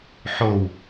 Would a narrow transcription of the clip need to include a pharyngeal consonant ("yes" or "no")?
yes